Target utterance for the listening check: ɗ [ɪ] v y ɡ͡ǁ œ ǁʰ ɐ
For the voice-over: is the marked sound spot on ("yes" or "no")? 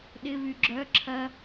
yes